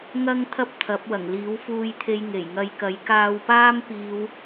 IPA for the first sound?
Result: ŋ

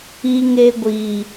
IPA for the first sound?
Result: i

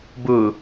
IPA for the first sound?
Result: b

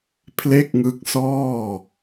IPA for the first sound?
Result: pʰ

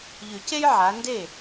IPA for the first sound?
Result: ʎ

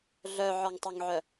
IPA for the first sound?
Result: ɮ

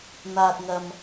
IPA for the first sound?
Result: n̪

